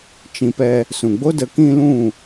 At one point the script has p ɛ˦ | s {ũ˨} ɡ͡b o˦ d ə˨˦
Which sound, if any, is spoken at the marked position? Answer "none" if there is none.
ũ˨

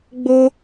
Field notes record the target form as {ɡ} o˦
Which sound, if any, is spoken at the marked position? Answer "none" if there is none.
ɡ͡b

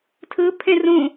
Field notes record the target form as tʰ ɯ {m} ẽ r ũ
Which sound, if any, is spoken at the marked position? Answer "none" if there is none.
pʰ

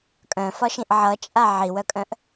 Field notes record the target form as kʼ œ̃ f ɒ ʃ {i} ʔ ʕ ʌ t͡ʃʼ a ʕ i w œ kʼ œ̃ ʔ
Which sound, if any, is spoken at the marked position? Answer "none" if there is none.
ĩ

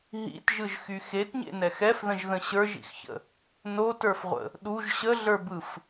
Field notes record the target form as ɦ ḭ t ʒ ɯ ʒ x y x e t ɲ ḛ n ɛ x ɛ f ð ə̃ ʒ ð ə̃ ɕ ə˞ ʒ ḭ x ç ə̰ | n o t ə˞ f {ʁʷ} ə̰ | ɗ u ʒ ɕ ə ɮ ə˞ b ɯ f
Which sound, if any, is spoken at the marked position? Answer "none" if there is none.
ʁʷ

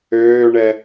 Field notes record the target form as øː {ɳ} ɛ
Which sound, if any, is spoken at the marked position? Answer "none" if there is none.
ɳ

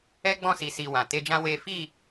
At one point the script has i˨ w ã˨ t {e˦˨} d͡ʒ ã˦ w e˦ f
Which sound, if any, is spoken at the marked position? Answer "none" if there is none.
e˧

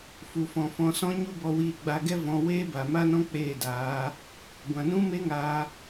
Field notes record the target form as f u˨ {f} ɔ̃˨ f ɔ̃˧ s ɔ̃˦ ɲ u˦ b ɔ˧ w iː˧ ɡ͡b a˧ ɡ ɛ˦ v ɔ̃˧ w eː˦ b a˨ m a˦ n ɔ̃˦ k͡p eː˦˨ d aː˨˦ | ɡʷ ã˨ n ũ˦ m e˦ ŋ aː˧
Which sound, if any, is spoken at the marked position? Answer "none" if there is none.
f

